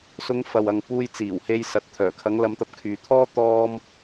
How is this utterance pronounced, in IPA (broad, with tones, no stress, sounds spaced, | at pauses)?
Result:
s ʊ˨˧ ŋ f ɐ˨ w ɐ˨ ŋ p uː˧ j t͡s iː˨˩ w h e˧ j s ɐ˨˥ t̚ t̪ʰ œː˨˩ kʰ ɐ˨˧ ŋ l ɐ˨˧ m t̪ ɐ˨ p̚ kʰ yː˨ t̪ʰ ɔː˥ t̪ ɔː˥ m